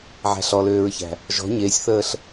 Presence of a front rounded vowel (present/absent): present